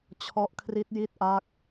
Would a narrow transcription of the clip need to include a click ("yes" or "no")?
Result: no